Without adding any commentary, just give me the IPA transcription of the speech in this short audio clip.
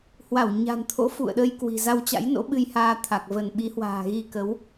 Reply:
h w a˧˩ w ɲ a̤˨˩ n t̪ʰ o̰˧˥ f ṵ˧˨ ə̯ ɗ ə˧ j k w i̤˨˩ z a˧ w t͡ɕ a̰˧˥ j n o̰˧˥ ɓ ɨ˧ j h aː˧ t̪ʰ a˨˩ k̚ v ə˧˩ n ɓ i˨˦ h w a̤ː˨˩ ɣ i˧ k ə˨˦ w

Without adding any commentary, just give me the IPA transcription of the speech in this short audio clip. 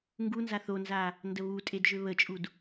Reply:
ŋ ɡ u n z a θ o n z a | n d ə β u tʼ e d ʒ ø β ə t͡ʃʼ u d

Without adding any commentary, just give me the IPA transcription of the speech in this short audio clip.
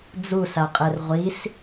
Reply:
d͡z u s a qʼ ɛ r ʁʷ i s

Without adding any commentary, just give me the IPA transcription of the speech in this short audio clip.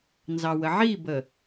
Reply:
n z ɑ w ə ʕ i b ə

